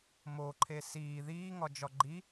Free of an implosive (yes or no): yes